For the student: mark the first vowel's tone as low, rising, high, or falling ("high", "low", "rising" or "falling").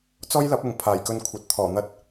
high